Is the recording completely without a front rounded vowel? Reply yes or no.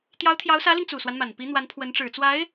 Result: yes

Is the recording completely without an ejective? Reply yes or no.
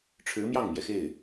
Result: yes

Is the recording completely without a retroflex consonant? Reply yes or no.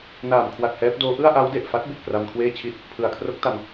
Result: yes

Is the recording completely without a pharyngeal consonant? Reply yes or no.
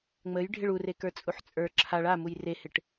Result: no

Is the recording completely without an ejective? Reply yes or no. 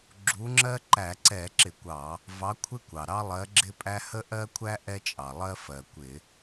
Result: no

